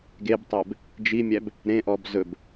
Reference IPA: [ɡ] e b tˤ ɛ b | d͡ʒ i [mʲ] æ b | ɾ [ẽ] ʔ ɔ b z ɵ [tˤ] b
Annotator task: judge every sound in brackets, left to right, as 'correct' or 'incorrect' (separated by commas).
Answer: correct, correct, correct, incorrect